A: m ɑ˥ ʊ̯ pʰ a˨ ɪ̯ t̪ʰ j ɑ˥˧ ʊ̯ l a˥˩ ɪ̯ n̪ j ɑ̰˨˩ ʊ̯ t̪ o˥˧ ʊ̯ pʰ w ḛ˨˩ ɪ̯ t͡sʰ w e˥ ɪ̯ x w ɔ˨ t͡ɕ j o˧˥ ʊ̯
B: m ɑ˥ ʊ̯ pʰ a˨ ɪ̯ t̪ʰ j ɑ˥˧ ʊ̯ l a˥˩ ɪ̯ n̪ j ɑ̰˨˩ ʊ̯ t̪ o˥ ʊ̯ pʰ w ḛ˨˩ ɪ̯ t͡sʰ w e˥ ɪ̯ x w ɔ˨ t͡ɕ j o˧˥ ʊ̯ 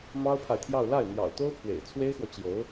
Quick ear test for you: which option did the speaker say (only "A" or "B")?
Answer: B